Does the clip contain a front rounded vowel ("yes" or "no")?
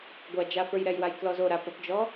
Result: no